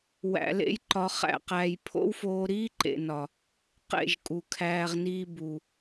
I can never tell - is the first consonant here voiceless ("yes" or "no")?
no